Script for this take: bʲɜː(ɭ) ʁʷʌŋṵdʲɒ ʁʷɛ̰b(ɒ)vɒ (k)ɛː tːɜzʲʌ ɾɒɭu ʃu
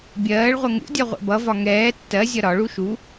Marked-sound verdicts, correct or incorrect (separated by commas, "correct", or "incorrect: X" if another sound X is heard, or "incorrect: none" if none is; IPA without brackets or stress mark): correct, incorrect: ʌ, incorrect: ŋ